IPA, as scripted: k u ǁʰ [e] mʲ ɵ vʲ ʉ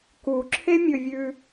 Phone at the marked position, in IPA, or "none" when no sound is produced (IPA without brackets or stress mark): e